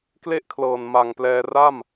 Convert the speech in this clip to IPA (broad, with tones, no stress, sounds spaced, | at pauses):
k l e˥˩ ʔ kʰ l ɤː˨˩ n m a˨˩ ŋ p l ɛː˧ r a˥˩ m